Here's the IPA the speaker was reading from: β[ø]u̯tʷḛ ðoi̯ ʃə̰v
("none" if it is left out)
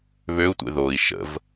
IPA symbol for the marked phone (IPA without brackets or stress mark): ø